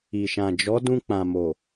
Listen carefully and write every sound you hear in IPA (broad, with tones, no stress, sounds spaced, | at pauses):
i˨ ʃ ã˨ d͡ʒ ɔ˨˦ d ũ˧ k͡p ã˨ m o˨